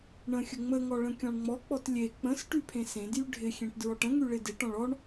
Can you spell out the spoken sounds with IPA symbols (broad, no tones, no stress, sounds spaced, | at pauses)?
ɳ ə̃ xʲ ə ŋ͡m ə ŋ ɔ ɭ ə̃ kʲ ɔ̃ ɳ ŋ͡m ɔ k͡p ɔ t lʲ e k͡p ə̃ s ʈ y pʰ ẽ s ẽ d j y ɖʱ ɪ xʲ ẽ ʈ d ɹ ɔ ʈ ə̃ ŋ y ɭ ɪ d ɪ ʈ ɔ̃ ɭ ɔ ɳ